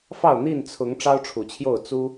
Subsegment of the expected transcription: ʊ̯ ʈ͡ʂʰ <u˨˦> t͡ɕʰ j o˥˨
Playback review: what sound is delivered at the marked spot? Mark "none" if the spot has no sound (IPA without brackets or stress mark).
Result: u˨˩